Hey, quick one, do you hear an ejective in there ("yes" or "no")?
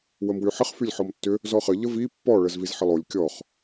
no